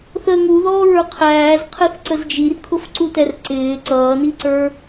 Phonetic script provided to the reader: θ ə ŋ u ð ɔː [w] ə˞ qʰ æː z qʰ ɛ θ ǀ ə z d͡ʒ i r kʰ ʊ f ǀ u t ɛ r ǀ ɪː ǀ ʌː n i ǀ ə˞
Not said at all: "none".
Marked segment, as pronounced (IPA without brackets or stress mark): ɹ